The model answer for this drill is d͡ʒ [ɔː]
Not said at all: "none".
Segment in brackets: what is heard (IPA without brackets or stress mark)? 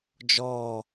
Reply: ɔː